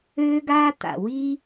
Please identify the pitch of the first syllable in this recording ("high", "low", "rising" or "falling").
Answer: high